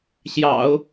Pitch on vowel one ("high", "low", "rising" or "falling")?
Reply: low